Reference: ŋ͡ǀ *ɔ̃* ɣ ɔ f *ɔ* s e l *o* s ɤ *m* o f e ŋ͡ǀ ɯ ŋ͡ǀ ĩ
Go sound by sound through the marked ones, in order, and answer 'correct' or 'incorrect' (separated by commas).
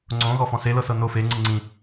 incorrect, incorrect, incorrect, incorrect